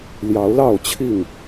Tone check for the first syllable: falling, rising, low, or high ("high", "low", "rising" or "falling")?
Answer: rising